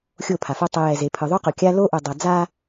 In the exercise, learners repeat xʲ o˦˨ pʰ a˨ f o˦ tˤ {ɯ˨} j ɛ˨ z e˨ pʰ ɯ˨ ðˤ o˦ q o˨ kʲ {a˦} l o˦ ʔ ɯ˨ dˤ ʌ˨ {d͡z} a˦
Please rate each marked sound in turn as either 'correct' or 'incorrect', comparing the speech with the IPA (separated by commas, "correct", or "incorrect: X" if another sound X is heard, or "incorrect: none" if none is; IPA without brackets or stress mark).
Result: correct, correct, correct